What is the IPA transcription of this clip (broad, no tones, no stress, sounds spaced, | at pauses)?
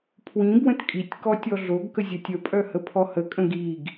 pʰ w ĩ b w ə̃ t kʼ i tʲ k ɔ tʲ ɔ ɮ o ɡ k ə zʲ ə tʲ ə pʼ œ h ə pʰ ɔ h ə kʼ ə̃ ɡ i ɡ